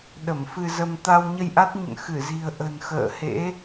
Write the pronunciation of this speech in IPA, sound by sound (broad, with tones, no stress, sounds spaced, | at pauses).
ɗ ə˧˩ m f ɨ˧ z ə˧ m t̪ a˧ w ɲ ə˧ j ʔ a˦˥ t̚ ɲ ə̰˧˨ n x ɨ˧˩ z i̤˨˩ ə̯ ʔ ə̤˨˩ n x ə̰ː˧˨ h ḛ˧˥